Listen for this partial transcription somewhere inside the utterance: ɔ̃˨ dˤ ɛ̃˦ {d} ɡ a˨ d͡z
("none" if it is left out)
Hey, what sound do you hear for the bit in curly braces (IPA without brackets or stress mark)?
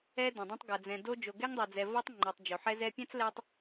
tˤ